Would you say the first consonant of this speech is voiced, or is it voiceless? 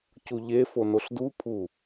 voiceless